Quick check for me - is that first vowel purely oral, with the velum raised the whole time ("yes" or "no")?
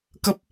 yes